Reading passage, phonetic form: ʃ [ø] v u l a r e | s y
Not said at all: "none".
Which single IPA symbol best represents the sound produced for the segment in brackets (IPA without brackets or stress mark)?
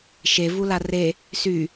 e